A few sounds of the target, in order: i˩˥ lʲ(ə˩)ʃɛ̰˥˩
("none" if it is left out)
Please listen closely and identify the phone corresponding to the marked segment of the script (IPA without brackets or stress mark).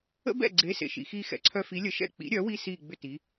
ə˩˥